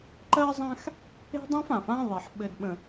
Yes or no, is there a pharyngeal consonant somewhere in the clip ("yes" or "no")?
yes